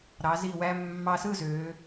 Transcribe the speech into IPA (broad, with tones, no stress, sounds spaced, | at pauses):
ɾ ɑ˩˧ z i˧˩ w æ˧ mː ɑ˧ s ɯ˥˧ z øː˩˧